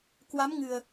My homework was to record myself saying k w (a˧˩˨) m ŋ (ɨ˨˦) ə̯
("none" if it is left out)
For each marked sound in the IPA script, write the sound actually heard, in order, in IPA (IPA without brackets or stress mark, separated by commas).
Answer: a˨˦, ɨ˨˩